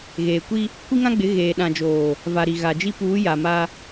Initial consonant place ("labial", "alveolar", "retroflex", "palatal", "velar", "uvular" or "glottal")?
velar